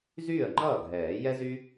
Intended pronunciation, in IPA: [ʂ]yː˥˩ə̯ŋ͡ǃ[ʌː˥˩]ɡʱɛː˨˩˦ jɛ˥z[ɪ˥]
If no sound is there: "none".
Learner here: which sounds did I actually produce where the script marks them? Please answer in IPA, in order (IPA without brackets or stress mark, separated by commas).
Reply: z, ʌː˥˩, y˥